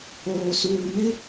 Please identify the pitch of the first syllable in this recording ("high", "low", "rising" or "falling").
low